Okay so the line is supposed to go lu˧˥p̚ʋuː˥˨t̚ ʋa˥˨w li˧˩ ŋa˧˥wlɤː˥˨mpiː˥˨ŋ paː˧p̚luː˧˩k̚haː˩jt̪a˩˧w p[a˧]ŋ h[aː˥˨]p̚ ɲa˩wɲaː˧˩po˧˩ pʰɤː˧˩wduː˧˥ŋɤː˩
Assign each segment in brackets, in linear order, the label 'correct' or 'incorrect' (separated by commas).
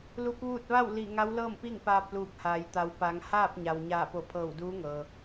incorrect, correct